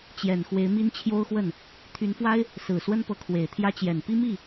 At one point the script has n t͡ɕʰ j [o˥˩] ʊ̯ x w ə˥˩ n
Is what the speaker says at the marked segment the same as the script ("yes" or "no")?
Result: no